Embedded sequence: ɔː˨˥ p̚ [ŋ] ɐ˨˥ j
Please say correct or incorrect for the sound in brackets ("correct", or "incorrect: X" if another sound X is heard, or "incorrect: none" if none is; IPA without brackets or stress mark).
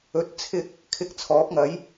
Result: correct